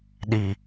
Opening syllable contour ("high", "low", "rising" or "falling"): low